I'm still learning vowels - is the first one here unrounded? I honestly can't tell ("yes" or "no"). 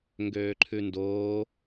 no